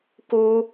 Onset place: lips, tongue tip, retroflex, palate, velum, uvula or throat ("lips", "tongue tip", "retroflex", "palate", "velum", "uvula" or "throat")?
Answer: velum